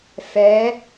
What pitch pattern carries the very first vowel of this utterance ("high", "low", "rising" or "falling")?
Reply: rising